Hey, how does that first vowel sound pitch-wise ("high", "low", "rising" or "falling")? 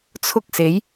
high